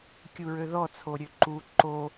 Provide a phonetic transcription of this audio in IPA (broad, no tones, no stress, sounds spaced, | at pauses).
kʲ u ɹ ø ð ɔ t͡sʰ o ɾʲ ø ǃ u ǃ o